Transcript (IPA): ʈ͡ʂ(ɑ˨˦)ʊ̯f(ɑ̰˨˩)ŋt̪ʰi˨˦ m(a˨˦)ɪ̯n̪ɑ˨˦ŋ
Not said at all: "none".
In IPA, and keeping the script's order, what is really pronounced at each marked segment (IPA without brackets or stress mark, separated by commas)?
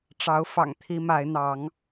ɑ˨˦, ɑ̰˨˩, a˨˦